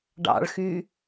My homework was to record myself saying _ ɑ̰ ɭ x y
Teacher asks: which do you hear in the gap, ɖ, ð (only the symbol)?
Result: ɖ